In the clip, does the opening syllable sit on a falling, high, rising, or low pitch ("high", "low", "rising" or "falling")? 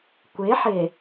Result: rising